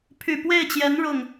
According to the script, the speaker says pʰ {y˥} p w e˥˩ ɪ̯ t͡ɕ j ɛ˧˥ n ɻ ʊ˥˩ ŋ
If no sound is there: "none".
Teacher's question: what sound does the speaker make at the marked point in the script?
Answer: y˨˩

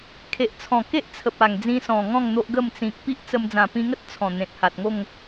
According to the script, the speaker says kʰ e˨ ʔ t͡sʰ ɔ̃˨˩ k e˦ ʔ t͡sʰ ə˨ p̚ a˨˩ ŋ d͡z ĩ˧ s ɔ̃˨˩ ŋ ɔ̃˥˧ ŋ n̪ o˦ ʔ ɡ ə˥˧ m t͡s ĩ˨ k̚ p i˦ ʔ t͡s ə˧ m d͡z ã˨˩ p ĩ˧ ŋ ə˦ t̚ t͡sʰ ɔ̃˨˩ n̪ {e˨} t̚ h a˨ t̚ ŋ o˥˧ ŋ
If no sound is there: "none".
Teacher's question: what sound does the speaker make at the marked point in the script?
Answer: ẽ˨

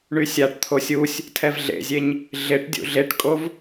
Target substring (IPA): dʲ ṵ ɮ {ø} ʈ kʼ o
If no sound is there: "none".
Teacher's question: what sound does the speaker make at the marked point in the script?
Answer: e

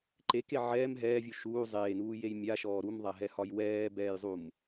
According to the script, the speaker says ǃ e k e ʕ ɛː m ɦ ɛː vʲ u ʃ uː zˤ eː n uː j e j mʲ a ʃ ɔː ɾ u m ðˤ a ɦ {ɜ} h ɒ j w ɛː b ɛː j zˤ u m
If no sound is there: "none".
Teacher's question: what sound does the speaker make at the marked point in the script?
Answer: ɛ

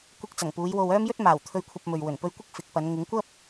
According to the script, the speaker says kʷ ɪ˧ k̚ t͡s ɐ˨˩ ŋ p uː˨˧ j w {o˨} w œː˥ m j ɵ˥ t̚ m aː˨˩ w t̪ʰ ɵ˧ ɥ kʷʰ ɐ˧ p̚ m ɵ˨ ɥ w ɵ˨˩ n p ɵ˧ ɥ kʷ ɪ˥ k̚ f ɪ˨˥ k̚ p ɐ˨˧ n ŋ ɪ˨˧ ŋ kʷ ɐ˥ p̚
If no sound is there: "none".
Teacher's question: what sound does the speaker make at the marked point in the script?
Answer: o˧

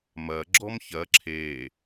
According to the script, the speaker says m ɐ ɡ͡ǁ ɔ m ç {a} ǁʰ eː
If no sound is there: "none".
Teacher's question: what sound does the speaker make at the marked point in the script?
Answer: ɐ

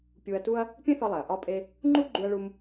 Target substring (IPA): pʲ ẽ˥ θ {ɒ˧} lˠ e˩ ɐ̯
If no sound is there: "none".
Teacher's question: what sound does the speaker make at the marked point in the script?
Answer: ɒ˧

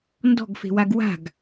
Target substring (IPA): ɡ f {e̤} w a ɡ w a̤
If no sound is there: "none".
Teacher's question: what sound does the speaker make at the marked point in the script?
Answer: e̤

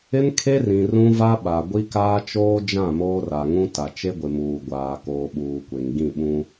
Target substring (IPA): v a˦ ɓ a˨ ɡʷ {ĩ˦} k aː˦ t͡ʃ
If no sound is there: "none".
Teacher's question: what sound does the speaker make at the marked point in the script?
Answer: i˦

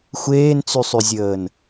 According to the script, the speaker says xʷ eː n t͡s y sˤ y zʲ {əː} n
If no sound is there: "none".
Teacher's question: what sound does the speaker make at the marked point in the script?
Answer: əː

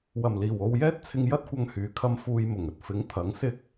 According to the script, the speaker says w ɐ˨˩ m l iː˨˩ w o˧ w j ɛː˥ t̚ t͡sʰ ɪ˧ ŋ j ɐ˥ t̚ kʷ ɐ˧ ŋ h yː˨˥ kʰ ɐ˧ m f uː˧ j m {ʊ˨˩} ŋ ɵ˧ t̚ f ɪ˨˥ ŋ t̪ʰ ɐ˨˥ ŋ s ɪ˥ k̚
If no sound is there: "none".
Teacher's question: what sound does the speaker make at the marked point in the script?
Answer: ʊ˨˩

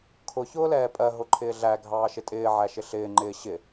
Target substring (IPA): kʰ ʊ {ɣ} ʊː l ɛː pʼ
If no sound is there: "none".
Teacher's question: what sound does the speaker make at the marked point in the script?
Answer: ç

